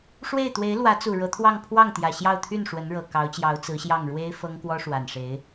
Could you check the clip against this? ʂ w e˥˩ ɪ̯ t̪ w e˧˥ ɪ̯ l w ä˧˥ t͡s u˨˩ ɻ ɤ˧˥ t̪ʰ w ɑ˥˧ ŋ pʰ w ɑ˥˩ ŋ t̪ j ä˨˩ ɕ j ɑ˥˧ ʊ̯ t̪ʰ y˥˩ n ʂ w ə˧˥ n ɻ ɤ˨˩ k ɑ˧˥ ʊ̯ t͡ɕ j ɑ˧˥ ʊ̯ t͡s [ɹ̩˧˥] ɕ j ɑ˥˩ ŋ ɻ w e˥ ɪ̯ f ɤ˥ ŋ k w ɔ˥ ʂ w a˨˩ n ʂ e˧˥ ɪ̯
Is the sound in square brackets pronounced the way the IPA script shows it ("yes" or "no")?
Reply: yes